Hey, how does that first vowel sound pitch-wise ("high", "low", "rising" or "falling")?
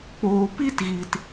low